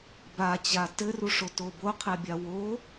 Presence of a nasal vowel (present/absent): absent